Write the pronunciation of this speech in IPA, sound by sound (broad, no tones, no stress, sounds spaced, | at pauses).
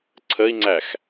ǀʰ ə i̯ ŋ͡ǀ æ x